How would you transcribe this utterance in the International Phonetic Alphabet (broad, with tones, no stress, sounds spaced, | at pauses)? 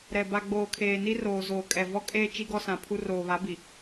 ɾ ɛ˨ b a˨ ɡ͡b oː˨ kʰ eː˨ n i˦ r oː˨ z oː˨ kʼ ɛ˨ v ɔ˦ kʼ eː˦ t͡ʃ i˦ ɡ ɔ˦ s ã˨ pʰ u˦ r oː˨ β a˨˦ b i˨